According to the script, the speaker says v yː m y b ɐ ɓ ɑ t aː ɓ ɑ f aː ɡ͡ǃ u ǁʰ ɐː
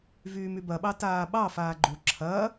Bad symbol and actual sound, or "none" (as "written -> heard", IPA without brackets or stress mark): none